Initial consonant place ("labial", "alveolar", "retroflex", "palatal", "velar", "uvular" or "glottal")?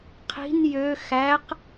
uvular